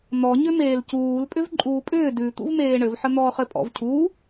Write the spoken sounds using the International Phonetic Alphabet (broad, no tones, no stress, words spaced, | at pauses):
n̪ɔ ɲʏmeːlcuːl pʼʏvǃʼuːpʼʏː dʉ t̪ṵvmeːɳɘvħə n̪ɔːχɘpʼɔ̰v cʰu